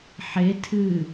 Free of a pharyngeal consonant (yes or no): no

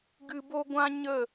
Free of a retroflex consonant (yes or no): yes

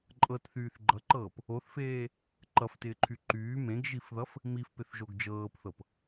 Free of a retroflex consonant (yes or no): yes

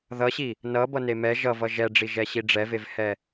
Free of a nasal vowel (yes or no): yes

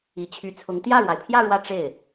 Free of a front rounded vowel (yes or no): no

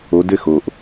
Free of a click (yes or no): yes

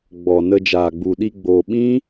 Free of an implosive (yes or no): no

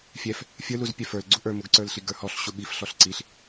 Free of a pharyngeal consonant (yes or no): yes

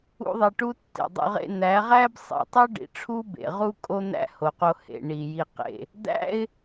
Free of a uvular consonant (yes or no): no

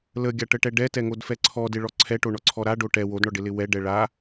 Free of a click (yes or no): no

